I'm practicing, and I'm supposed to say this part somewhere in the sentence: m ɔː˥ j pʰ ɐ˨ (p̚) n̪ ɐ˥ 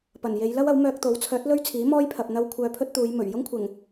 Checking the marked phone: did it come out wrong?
no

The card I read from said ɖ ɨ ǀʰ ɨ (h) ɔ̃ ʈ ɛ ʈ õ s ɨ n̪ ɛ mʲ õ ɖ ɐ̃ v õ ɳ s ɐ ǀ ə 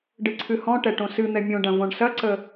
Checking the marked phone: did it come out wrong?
no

